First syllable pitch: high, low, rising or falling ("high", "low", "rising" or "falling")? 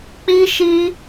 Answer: high